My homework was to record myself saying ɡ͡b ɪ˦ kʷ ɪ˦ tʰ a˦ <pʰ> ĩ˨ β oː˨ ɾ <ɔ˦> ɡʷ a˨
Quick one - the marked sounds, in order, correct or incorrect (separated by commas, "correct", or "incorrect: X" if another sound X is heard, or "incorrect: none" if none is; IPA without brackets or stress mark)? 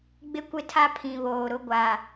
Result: correct, incorrect: ʊ˦